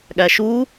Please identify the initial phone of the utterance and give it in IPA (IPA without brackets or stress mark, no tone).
ɠ